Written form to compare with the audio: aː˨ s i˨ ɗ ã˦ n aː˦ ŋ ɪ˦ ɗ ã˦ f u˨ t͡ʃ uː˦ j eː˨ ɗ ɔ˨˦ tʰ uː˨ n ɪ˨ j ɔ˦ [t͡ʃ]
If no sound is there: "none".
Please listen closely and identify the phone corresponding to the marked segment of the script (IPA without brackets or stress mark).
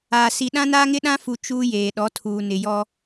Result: none